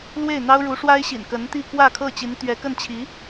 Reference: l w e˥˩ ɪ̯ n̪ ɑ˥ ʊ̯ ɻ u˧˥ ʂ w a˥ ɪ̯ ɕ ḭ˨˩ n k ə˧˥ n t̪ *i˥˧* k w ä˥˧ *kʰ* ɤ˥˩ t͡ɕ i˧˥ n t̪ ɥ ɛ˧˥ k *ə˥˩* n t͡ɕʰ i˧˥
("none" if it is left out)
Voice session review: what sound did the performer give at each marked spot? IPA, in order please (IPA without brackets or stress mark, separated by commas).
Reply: i˥˧, kʰ, ə˥˩